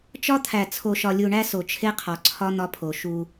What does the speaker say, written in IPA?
t͡ʃ ɒ˦ t̪ʰ æ˨ t͡sʰ o˨ ʃ ɒ˨ lʲ u˨ ɳ æ˦ s o˨ t͡ʃʰ e˦ qʰ ɒ˨ ǀʰ ɒ˦ n̪ ɒ˦ pʰ o˨ ʃ u˦

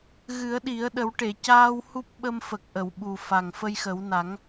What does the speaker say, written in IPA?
ɣ ɨ˨˩˦ ə̯ ɗ i˨˩˦ ə̯ ɗ ə˨˩˦ w ʈ e˨˩˨ c aː˧ w h u˦˥ p̚ ɓ ə˧ m f ə˨˩ k̚ ʔ ə˨˩˨ w ɓ u˨˩ f a˨˩ ŋ f ə˧ j x ə˨˩˦ w n a˨˩˦ ŋ

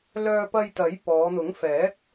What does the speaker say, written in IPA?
l œː˧ p ɐ˧ j t̪ ɐ˨˥ j p ɔː˨˧ n̪ ʊ˨˥ ŋ f ɛː˨˥ k̚

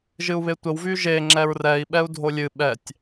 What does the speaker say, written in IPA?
ʒ ɨ u̯ β e tʷ ə w v y ʒ e ŋ͡ǁ ɛ ɹ r ɛ i̯ ɓ ɛ u̯ dʱ o lʲ ɨ ɓ ɛ tʲ

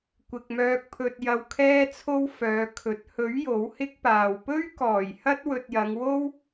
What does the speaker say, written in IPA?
kʷ ɪ˨ k̚ m œː˧ k̚ pʰ ɵ˧ t̚ j ɐ˧ w kʰ ɛː˥ t͡sʰ o˥ w f œː˨˧ kʰ ɵ˨˥ t̚ h ɵ˨˥ ɥ j o˨˥ w h ɪ˥ k̚ p aː˨ w p ɵ˥ ɥ k ɔː˨˩ j h ɐ˥ t̚ w ɵ˧ t̚ j ɐ˨˧ ŋ w o˥ w

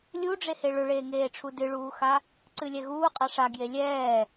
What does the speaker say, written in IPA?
lʲ u ɖ͡ʐ e h e ɭ ʏ ɭ eː ŋ eː ʈ͡ʂʰ u d ɨ ɭ uː x a | ǀ ɨ lʲ ɛ ɣ uː qʼ a ʂ a ɡ j e lʲ ɛː

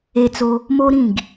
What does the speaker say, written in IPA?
e˧ t͡s o˧ | m o˦ ɾ ĩ˦˨ ɡ

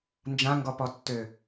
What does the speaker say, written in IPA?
n d͡ʒ ã ŋ ɡ ɔ p ɔ tː ø

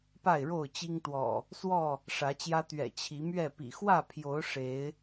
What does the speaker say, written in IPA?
p a˥˨ ɪ̯ ɻ o˥˨ ʊ̯ t͡ɕ i˦ ŋ t̪ w ɔ̰˨˩ | s w ɔ˥˨ | ʂ ä˨˦ t͡ɕ j ä˦ t̪ ɥ ɛ̰˨˩ t͡ɕʰ i˨˦ m ɥ ɛ˥˨ p ḭ˨˩ x w ä˥˨ pʰ j o˨˦ ʊ̯ ʂ e˨˦ ɪ̯

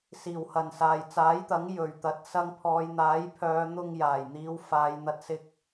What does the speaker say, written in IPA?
s iː˨˩ w h ɐ˨˩ n s aː˨ j t͡s aː˨˥ j t̪ ɐ˨˥ ŋ j ɵ˨ ɥ t̪ ɐ˨˥ t̚ s ɐ˧ ŋ pʰ ɔː˨˧ j n̪ aː˨˥ j pʰ œː˨˧ n̪ ʊ˧ ŋ j aː˨˩ j n̪ iː˨˧ w f aː˨˧ j n̪ ɐ˧ t̚ s ɪ˥ k̚

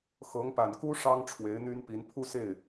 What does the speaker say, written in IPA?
x ɤ˧˥ ŋ p a˨˩ n k u˥ ʂ ɑ˥ ŋ ʈ͡ʂʰ w e˧˥ ɪ̯ n̪ y˥ n p i˧˥ n pʰ u˥˧ s e˥˩ ɪ̯

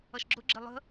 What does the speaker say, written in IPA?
ʌ ʃ ɡ͡ǁ ʊ ɡ͡ǁ ɪ lˠ ə̤

